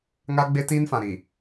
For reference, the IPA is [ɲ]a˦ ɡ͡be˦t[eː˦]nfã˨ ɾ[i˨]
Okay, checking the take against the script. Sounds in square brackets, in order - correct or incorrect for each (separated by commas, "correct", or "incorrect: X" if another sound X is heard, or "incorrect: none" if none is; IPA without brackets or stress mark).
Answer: incorrect: ŋ, incorrect: iː˦, correct